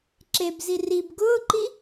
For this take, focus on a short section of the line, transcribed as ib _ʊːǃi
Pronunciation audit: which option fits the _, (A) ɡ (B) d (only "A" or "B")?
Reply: A